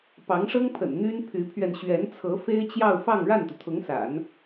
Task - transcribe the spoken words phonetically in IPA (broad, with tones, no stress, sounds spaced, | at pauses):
p ɑ˧˥ ŋ ʂ ɤ˥ ŋ pʰ ə̰˨˩ n n̪ y˥ n pʰ y˧˥ pʰ ɥ ɛ˧ n ɕ ɥ ɛ˧˥ n t͡sʰ ɤ˧˥ f e˥ ɪ̯ t͡ɕ j ɑ˥˧ ʊ̯ f ɑ˥˧ ŋ ɻ a˥˩ n t̪ u˩ t̪ʰ ʊ˧˥ ŋ s a̰˨˩˦ n